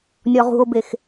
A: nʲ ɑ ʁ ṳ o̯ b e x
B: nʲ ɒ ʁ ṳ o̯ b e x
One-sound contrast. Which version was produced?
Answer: B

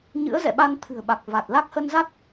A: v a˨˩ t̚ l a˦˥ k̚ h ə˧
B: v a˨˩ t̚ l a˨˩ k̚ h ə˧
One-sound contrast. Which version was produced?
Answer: A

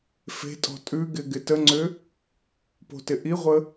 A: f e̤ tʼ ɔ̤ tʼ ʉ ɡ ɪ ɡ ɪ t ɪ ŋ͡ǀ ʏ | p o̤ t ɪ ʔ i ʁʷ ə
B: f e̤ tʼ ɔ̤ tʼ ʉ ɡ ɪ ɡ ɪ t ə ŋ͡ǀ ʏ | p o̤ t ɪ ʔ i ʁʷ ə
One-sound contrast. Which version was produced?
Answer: B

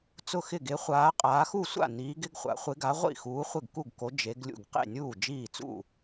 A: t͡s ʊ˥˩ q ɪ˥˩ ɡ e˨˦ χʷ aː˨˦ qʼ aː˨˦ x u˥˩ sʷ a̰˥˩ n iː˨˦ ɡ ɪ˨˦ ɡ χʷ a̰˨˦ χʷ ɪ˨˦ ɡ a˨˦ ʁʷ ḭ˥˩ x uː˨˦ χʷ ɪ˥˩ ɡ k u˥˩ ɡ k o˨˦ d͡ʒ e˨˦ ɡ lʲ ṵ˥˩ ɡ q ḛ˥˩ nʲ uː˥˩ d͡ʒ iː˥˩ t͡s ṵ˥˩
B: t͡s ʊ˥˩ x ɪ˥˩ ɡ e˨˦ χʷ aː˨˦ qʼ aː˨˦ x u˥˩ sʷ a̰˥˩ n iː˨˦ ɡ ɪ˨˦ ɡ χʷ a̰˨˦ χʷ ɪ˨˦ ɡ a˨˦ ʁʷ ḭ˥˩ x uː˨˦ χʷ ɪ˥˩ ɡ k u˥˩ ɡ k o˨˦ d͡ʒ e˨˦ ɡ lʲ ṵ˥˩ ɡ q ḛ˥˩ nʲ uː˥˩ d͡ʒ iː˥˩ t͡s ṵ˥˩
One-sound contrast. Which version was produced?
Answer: B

